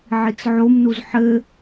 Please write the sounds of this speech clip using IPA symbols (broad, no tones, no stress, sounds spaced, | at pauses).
ʕ i t͡s ʕ o m n u z ħ ɘ